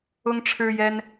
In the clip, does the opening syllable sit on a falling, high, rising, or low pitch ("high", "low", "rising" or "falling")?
high